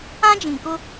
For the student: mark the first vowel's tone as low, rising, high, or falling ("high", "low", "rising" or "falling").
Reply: high